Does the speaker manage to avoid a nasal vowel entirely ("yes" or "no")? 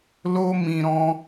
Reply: no